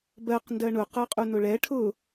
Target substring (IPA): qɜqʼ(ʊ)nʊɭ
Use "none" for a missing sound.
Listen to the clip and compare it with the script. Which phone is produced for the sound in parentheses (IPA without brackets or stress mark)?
u